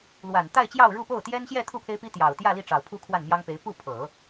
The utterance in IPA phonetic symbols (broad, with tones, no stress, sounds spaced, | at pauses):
l w a˨˩ n t̪ a˥˧ ɪ̯ t͡ɕ j ɑ˥˧ ʊ̯ ɻ u˥˧ p o˥˩ ʊ̯ t̪ j ɛ˥ n ɕ j ɛ˥˧ t̪ʰ u˥˩ pʰ e˥ ɪ̯ p i˥ t̪ j ɑ˨˩ ʊ̯ t̪ j ä˥˧ l i˥˩ ʈ͡ʂ ɑ˨˩ ʊ̯ pʰ u˥ kʰ w a˥˩ n m j ɑ˥ ŋ p e˧˥ ɪ̯ p u˥˩ pʰ ɤ˨˩˦